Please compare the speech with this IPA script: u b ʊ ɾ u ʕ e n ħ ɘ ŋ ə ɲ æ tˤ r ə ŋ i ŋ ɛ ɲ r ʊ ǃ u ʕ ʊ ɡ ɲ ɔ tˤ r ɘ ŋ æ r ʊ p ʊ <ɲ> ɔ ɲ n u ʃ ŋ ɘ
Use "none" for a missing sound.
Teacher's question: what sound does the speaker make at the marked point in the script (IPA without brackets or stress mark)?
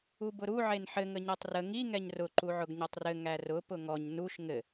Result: ŋ